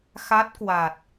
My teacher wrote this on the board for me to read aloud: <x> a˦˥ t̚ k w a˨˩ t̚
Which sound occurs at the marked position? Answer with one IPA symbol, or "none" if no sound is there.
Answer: x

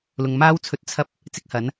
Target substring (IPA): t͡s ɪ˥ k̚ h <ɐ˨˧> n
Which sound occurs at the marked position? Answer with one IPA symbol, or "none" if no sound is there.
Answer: ɐ˨˥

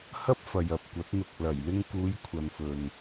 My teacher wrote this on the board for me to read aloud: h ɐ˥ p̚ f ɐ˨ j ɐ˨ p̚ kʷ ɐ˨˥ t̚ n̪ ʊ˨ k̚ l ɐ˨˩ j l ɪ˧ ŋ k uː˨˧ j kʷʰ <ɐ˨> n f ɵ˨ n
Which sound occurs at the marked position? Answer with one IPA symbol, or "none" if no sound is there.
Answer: ɐ˨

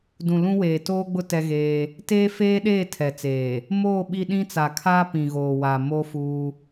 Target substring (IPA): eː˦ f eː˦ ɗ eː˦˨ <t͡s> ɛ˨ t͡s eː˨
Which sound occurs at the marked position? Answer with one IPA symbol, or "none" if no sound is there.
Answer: tʰ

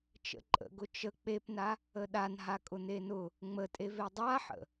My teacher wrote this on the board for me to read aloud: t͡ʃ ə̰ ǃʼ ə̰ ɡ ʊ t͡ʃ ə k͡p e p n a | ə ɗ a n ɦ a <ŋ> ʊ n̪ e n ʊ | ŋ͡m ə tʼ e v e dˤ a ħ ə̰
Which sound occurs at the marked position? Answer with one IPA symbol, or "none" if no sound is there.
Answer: kʼ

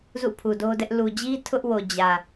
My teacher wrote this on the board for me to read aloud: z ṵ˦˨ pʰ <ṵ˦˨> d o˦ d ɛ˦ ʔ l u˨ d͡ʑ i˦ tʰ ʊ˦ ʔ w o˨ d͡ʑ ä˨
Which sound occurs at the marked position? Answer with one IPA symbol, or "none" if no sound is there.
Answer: u˨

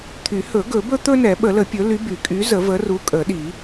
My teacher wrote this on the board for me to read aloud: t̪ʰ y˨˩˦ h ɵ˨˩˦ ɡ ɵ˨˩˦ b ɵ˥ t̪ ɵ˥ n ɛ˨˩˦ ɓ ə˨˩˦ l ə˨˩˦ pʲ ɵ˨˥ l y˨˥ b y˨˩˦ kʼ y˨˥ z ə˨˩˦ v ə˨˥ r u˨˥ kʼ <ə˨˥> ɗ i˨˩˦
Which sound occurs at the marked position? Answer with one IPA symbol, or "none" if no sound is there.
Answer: ə˨˩˦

